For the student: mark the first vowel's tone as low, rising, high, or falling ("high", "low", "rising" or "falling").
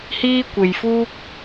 high